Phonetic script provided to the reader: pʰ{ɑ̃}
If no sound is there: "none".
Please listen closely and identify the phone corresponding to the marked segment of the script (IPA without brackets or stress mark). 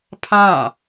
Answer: ɑ̃